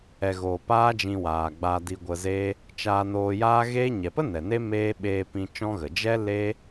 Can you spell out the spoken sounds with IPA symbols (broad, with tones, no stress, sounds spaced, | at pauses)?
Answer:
ɛ˨ ɣ oː˨ p aː˦ d͡ʒ ĩ˧ w aː˨ ɡ͡b a˧ d i˧ ɡʷ ə˧ z e˦ | t͡ʃ aː˧ n oː˧ j aː˦ ɣ e˦ ɲ ɛ˨ p ə˦ n ɛ˨ n e˦ m eː˦ ɓ eː˧ p ĩ˧ t͡ʃ ɔ̃˦ ɣ ə˨ d͡ʒ ɛ˦ l e˦